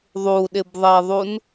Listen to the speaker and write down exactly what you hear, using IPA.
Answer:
ðˤuɗɪbðˤɛðˤun

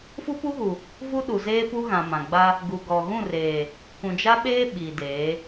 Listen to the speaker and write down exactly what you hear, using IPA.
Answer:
fu˦pu˦ɣu˨ | vu˦ɗu˨zeː˦pu˦ ɣã˨mã˨ɡ͡ba˦ | ɡu˨ɡɔ˨ ɣũ˦˨reː˨ | kũ˨d͡ʒa˦ɓeː˦ ɓi˨deː˨˦

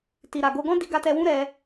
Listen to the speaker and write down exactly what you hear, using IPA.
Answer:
ti˨ɾa˨ɡo˧ ɡɔ̃˦di˧ɡa˧ tɛ˧wũ˦ɾɛ˧

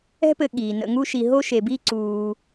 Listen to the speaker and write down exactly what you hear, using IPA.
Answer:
ɛ̤˦pɘ˨ ɠiː˩ nə̰˨ŋu˦ʃi˨ ɦo˥ʃe˨bi˥ ǀuː˨

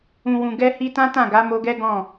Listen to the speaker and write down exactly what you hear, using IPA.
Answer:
ũ˨wũ˨ ɡɛ˧hi˧tã˦ tã˦˨ɡa˨˦mo˧ɡɛ˦ ɡɔ̃˦˨

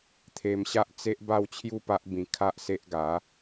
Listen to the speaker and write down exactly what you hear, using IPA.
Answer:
t̪ʰe˧mɕa˦ʔt͡se˦ʔ ba˦wt͡ɕʰju˦pa˦ʔbĩ˧ kʰa˦ʔse˦ʔ ɡa˨˦

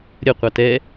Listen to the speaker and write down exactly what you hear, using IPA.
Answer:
ɾʲə qʷɑtɛ

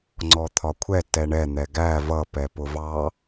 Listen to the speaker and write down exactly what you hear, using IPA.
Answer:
ŋ͡ǀɔt̪ʰɒkʷʰɛ tɛɳɛ n̪ɛɡæ vʌ pɛpʊvɑ

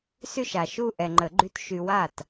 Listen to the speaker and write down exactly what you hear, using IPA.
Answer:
sy˥˧ʃa˨ʃu˥˧ ʔɛ˨ŋ͡ǃə˨˩˦ɡ͡ǃy˧˥t ʃy˨wa˥˩t

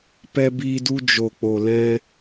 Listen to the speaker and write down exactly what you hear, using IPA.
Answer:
pɛ˧biː˧du˧ d͡ʒo˨k͡po˨lɛ̃˧

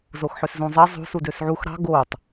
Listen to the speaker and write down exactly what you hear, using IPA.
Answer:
zoxħøszũzˤe zˤṳ sudøsʕux ɾɑ̤ ɡotˤ

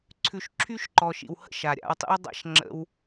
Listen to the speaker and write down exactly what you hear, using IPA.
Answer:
ǀʰʉ˨ʃǁʰy˦ʃǃɔ˨ʃḭ˨w hə̰˦˨ʃa˨ɾʲa̰˧wtˤḭ˦w dˤa̰˦ʃ ŋ͡ǁə̰˦w

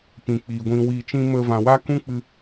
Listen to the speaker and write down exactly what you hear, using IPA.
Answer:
pĩ˨k͡piː˨ ɡʷĩ˨wi˨t͡ʃĩ˧ mə˧ vã˨wa˦kũ˦k͡pɨ˧

